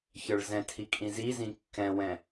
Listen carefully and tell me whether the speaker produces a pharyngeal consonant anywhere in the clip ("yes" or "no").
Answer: no